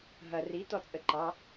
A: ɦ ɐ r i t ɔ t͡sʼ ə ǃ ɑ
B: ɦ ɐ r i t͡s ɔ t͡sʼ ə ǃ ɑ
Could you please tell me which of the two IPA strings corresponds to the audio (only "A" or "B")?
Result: A